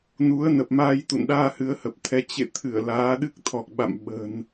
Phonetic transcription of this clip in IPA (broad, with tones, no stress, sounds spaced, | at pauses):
n u˨˦ ə̯ n ə˨˩ p̚ m aː˧ j t̪ ṵ˧˨ n ɗ aː˧ h ɨ˨˦ ə̯ h ə˨˩ p̚ t̪ʰ ɛ˧ t͡ɕ ḛ˧˨ t̪ʰ ɨ˧˩ ə̯ l aː˨˦ ɗ ɨ˦˥ k̚ t̪ʰ ɔ˨˩ k̚ ɓ a̰˧˨ m ɓ ə̤˨˩ n